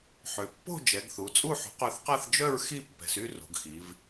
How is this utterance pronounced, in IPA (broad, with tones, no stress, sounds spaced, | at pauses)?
ħ ø˩˧ pː o̤˥˨ d͡ʒ ɛ˩˧ ɡ θ u˩˧ t͡sʼ u˥˨ ħ o̤˩˥ q œ˩˥ θ q a˥˨ θ d͡ʒ œ˥˨ ɹ x i˥˨ pː ɛ̤˩˧ s y˥˨ r o̤˩˧ ɡ x i˩˧ v